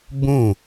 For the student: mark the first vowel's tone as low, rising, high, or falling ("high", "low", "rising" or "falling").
falling